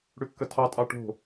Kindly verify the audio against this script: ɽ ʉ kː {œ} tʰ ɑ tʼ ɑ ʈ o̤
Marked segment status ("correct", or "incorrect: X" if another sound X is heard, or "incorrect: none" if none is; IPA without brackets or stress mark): incorrect: ə